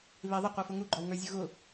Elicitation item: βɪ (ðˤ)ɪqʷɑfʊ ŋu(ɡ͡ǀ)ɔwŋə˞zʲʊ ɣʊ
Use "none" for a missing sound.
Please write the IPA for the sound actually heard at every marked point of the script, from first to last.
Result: ðˤ, ɡ͡ǃ

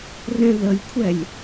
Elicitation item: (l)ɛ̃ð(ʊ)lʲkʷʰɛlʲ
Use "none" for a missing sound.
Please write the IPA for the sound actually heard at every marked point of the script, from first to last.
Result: r, ə

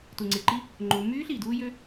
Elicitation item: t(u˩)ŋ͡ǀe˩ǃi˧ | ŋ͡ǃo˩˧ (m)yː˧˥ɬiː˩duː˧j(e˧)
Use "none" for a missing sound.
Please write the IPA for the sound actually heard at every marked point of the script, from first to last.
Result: u˩, m, ø˧

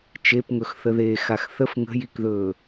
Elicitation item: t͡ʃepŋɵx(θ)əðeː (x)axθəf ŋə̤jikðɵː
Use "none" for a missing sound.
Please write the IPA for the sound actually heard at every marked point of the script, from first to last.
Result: θ, x

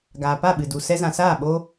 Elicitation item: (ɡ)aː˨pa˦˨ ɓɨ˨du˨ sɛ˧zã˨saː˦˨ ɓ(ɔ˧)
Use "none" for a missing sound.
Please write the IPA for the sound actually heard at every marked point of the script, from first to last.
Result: ɡ, o˧

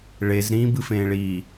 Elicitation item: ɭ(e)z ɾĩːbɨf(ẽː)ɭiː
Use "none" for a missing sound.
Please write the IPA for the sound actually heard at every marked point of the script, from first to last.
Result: e, ẽː

